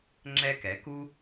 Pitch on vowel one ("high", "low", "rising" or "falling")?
high